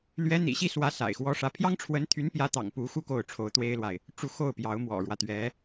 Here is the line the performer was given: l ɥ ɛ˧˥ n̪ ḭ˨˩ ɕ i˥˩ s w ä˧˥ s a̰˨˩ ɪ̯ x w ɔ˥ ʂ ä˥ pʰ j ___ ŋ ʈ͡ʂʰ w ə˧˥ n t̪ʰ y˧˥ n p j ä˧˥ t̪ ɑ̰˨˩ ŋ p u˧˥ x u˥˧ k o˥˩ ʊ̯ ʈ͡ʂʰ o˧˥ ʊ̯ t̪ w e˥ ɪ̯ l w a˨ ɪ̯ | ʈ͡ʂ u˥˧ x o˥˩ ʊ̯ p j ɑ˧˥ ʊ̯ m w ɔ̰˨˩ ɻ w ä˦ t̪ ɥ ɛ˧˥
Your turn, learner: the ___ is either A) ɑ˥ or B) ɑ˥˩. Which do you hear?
A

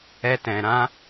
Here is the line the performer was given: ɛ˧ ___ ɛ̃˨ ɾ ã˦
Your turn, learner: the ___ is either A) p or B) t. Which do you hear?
B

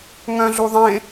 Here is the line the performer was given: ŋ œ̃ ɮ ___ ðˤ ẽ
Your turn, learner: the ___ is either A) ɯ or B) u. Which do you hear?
B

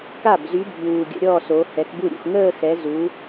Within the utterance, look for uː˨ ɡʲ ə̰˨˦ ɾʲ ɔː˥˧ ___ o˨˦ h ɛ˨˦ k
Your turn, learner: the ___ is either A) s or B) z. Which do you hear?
A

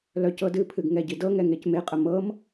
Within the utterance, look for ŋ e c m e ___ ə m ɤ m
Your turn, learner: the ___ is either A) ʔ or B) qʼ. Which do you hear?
B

